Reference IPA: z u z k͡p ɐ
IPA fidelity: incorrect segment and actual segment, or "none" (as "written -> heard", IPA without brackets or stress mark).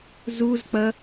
none